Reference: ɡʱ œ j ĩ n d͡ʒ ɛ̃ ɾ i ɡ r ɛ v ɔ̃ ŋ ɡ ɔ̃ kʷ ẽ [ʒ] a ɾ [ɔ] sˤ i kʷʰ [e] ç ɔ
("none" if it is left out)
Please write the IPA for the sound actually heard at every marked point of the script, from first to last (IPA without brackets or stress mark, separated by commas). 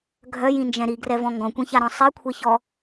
ç, ɔ̃, e